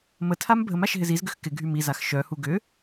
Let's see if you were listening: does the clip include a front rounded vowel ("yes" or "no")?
yes